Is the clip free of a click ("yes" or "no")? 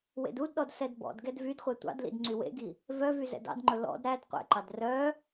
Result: no